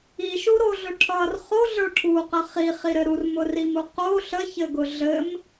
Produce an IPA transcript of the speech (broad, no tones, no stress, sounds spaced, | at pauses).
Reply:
i ʃ u ɾ o ɮ ʊ ʈʰ ʌ r χ o ɮ ə˞ ʈʰ u q ə χ i χ i ɾ ɘ ɾ u r m ʊ r i m u q o ɬ ə ç ɘ ɡ ʊ ɮ ɘ m